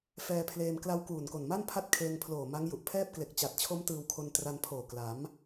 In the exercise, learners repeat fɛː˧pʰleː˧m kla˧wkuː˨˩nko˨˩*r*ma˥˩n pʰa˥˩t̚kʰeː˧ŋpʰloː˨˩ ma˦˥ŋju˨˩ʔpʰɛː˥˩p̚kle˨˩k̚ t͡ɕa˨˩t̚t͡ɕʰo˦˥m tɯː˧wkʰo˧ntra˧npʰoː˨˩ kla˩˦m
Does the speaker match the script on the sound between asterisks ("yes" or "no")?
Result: no